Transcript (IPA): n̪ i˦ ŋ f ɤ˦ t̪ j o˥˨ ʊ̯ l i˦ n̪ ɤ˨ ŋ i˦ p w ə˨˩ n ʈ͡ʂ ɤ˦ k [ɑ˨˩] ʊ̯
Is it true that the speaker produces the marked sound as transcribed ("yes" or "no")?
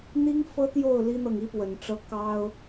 no